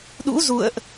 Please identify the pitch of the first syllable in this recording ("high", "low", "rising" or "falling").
rising